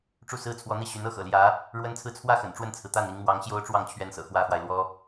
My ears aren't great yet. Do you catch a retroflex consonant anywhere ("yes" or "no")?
yes